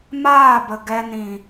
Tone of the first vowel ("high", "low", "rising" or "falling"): falling